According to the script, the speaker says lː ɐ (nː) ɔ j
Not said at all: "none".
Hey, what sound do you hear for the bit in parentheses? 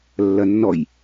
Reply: nː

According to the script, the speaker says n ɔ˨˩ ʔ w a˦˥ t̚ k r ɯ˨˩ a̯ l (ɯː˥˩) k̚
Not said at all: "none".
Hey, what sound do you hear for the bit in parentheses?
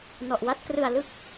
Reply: ɯ˥˩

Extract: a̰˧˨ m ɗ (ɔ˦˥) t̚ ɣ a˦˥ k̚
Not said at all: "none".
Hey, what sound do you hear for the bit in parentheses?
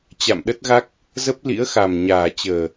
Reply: ə˦˥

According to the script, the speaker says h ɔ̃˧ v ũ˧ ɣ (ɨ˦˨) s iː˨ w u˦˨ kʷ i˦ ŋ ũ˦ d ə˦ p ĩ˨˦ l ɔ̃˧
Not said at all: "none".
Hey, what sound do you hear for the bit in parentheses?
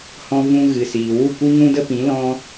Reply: ɨ˨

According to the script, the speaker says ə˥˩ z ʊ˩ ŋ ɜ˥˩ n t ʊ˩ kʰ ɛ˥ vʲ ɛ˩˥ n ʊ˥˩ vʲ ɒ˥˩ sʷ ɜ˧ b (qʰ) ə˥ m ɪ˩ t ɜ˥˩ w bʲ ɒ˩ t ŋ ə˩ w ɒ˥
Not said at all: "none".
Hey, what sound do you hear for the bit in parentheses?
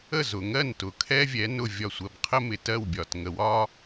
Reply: qʰ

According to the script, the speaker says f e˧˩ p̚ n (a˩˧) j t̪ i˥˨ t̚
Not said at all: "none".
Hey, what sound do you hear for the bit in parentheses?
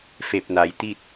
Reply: a˩˧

